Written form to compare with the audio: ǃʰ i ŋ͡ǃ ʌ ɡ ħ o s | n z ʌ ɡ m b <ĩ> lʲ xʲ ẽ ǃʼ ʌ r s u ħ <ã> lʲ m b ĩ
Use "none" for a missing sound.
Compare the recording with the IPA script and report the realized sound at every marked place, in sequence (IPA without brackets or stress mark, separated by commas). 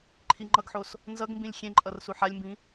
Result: ĩ, a